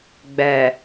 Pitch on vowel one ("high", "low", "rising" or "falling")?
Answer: low